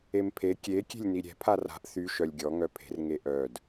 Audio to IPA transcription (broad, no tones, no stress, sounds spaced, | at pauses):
e m pʰ e kʲ e kʲ e̤ lʲ n i ɾʲ ɛ̤ pʰ a r a̤ ʔ θ y ʃ œ lʲ ɡʲ ɔ ŋ œ pʰ e̤ r ŋ e ʔ œ d